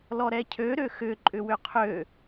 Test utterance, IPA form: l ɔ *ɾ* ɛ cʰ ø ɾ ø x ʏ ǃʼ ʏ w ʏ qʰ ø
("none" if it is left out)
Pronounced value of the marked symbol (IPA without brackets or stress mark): ɾ